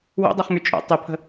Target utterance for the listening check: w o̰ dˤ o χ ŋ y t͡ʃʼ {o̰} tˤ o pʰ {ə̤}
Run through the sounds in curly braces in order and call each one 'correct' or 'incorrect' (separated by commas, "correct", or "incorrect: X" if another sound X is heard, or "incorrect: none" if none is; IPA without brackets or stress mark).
correct, correct